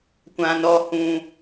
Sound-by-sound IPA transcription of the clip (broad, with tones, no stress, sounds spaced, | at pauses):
kʷ ã˧ n ɔ˧ h ũ˧